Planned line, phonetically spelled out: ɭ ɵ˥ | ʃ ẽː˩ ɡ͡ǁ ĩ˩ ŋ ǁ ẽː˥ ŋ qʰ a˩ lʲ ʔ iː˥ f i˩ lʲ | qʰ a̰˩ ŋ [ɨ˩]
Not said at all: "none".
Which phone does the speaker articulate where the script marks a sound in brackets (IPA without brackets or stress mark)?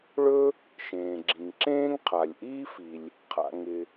ɪ˩